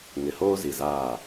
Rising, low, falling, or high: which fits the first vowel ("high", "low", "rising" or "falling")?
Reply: low